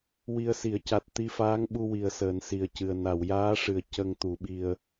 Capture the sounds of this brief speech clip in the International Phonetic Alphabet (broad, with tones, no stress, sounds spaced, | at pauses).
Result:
w i˨˩ ə̯ s i˨˩˨ ə̯ c a˨˩ t̚ t̪ i˧ f aː˧˥ ŋ ɓ u˧ w i˨˩ ə̯ s əː˨˩ n s i˨˩ ə̯ c ɨ˨˩ ə̯ n a˨˩˨ w j aː˧˥ ʂ ɨ˨˩ ə̯ c ə˧ ŋ t̪ u˨˩˦ ɓ i˧ ə̯